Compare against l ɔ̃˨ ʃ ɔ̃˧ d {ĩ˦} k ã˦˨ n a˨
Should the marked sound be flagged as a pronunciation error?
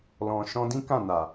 no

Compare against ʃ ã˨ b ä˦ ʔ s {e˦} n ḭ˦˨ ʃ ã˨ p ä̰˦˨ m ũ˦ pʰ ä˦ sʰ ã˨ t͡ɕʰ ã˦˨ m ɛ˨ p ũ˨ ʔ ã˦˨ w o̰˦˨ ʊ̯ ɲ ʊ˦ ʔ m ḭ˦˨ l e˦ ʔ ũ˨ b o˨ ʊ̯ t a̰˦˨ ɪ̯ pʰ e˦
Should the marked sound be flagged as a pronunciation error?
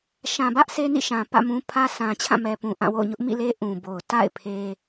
no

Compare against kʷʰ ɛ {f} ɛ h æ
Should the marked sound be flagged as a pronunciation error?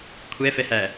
no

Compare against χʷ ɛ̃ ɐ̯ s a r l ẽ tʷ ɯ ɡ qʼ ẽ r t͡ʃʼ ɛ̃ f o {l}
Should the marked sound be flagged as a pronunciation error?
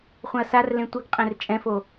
yes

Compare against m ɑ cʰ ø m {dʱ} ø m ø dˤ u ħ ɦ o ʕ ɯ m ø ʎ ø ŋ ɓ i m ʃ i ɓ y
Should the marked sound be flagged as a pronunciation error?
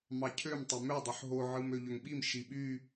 yes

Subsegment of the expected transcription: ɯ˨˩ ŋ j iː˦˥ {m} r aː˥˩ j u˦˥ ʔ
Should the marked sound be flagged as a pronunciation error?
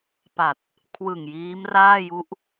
no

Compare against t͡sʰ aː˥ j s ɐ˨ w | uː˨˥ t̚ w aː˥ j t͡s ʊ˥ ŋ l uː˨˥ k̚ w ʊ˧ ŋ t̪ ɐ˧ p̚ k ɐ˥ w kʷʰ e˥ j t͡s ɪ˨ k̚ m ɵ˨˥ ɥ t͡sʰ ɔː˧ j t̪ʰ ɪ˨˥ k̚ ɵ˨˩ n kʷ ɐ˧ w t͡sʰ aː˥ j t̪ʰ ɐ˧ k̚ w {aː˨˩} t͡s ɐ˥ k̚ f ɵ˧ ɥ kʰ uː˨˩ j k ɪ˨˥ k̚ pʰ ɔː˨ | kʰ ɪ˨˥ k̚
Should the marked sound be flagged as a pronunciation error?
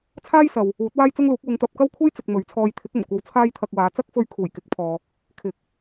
yes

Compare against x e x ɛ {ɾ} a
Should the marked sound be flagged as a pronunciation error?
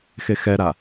no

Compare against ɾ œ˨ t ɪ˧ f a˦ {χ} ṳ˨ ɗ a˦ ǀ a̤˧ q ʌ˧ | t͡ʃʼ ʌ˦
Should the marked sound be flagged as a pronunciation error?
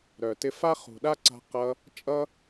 no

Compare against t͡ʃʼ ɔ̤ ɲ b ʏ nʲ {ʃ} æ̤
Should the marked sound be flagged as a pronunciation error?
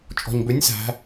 yes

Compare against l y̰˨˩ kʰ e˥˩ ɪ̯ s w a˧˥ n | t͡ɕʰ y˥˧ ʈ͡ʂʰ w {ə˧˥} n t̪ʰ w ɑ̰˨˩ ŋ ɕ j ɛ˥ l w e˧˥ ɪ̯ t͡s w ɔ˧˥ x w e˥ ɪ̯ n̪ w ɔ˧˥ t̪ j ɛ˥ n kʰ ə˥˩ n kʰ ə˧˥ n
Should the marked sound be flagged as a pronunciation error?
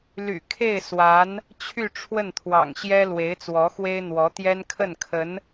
yes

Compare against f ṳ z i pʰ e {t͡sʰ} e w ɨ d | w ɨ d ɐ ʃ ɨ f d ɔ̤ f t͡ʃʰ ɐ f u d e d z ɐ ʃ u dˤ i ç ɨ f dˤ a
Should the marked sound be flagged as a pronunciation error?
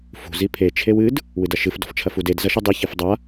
yes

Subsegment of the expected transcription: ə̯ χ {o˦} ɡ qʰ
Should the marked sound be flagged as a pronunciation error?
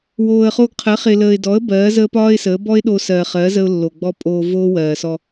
yes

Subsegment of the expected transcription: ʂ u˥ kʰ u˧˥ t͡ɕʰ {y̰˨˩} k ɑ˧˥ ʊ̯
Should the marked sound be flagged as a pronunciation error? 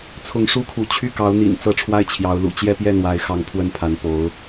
yes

